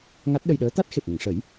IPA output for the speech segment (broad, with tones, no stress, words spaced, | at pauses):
ŋa˦˥t̚ɗə˧jɗəː˧˥ t̪a˦˥t̚xe˨˩p̚ŋə˨˩˨ŋʂəː˨˩˦j